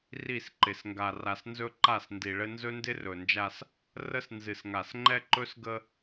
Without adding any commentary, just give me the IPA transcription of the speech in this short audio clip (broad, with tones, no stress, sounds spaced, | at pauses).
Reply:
r i˦˨ s ǃ ɪ˨ s ŋ ɡ a˨ r a˨ s n z ɵ˦ ǃ a˦˨ s n d i˨ ɭ ɘ˦ n z ɵ˦ n d ɪ˦ r ɵ˨ n d͡ʒ a˦ s | r ə˦ s n z ɨ˨ s ŋ a˨ s ŋ͡ǃ ɛ˦ ǃ ɵ˦ s ɡ ə˦